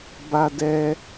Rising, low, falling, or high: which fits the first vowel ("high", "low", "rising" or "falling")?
high